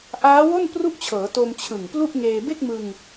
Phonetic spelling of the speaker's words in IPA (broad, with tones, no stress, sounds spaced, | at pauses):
ʔ aː˦˥ w o˥˩ n p r u˥˩ ʔ t͡ɕʰ ɤː˩˦ t o˧ m t͡ɕʰ ɯ˨˩ ŋ p l u˥˩ ʔ ŋ eː˧ b e˥˩ k̚ m ɯ˧ ŋ